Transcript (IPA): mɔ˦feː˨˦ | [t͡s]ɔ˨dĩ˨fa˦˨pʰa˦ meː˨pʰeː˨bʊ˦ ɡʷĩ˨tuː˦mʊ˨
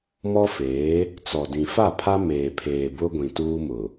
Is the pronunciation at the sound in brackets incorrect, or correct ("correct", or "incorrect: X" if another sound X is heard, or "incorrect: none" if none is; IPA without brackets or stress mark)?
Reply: correct